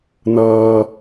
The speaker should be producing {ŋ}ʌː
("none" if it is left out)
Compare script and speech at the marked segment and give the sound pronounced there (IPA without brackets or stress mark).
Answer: n